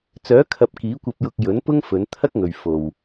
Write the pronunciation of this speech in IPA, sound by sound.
t͡s œː˨˥ kʰ ɐ˨ p̚ k iː˨˥ kʷ ɐ˧ p̚ j ʊ˧ k̚ j ɵ˨˥ n p ʊ˥ ŋ f ɵ˨˧ n t̪ʰ ɐ˥ k̚ ŋ ɵ˨ ɥ f o˨ w

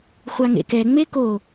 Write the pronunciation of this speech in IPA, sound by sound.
χʷ a ŋ ḛ k ɛ ŋ͡m e k o

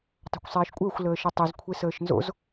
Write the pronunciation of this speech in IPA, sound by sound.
tˤ a̤ kʷ sˤ eː ʃ kʷʼ əː xʷ l əː ʃ ə tˤ i z kʷʰ e s əː ʃ n z o̰ z

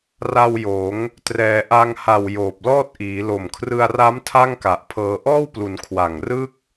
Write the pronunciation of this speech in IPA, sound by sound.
r a˧ w j oː˩˦ ŋ | t r ɛː˩˦ ʔ a˧ ŋ h a˨˩ w j oː˨˩ p̚ l ɔː˥˩ t̚ ʔ iː˩˦ l o˨˩ m kʰ r ɯ˧ a̯ r a˦˥ m tʰ a˥˩ ŋ k a˨˩ ʔ pʰ ɤː˧ ʔ ɔː˥˩ w p l u˩˦ n kʰ w a˨˩ ŋ r ɯː˥˩ k̚

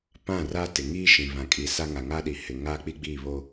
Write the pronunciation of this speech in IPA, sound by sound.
p ã˦˨ r a˦ t ɪ˨ ŋ iː˦ ʃ ĩ˨ β ã˨ kʼ i˨ s a˦ ŋ a˨ ŋ a˦ ɗ i˨ h ɪ˨ ŋ aː˦ k͡p i˦ ɡ͡b iː˦˨ β o˦

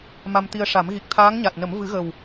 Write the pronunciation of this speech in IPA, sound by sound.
m a˧ m t̪ i˧ ə̯ ʂ a˨˩˦ m ɣ i˨˩ k̚ t̪ʰ aː˧˥ ŋ ɲ a˨˩ t̚ n ə˨˩˦ m v ɨ˨˩˦ ɣ ə˨˩ w

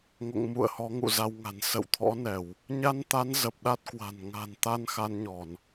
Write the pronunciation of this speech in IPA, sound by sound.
ŋ o̰˧˨ ŋ m ṵ˧˨ ə̯ h ɔ˨˦ ŋ ṵ˧˨ z a˧ w ŋ a̤˨˩ n s ə̰˧˨ w t̪ʰ ɔ̰˧˥ n ɛ˧˩˨ w | ɲ a˧ n t̪ a˨˦ n z ə˨˩ p̚ ɗ a˦˥ t̚ k w a̤˨˩ n ŋ a̤˨˩ n t̪ a˧ n x a˧ n ɲ ɔ˧˩˨ n

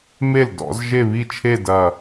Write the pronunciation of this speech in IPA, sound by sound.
m e˥˩ l d ɔ̰˨˦ z ʒ e˥˧ β i˥˧ t͡ʃʰ e˥˧ d ɐ˥˧

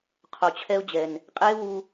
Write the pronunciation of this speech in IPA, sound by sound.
qʰ o˨ t͡ɕʰ ɛ˧ ʊ̯ d͡ʑ ɛ˨ n | qʼ eː˦ w u˧

